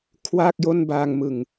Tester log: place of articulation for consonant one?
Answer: velar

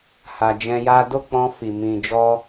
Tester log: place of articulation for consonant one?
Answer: glottal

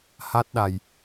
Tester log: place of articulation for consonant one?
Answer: glottal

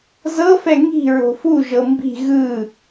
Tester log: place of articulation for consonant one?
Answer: alveolar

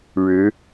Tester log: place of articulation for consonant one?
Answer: retroflex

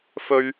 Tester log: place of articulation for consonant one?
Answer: labial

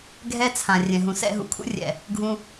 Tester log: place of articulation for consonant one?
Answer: velar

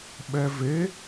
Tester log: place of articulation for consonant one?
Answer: labial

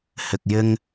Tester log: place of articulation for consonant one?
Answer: glottal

